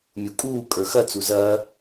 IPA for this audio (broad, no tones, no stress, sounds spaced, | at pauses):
mʲ u kʼ uː kʼ ə˞ x ɐ t͡s u z ɐː